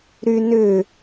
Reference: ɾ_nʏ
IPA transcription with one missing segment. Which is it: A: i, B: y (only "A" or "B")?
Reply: B